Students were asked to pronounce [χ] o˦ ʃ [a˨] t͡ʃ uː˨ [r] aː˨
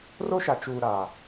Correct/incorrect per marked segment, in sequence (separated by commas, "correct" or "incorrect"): incorrect, correct, incorrect